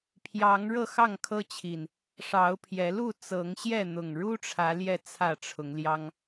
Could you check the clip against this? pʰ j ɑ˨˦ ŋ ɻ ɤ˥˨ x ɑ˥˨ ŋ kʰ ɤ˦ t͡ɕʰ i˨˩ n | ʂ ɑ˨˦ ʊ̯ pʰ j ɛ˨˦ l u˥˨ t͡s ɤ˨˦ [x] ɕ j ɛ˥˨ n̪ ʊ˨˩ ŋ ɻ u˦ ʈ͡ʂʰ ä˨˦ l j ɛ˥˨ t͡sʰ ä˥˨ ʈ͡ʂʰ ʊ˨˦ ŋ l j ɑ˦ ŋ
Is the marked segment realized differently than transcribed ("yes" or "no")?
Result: yes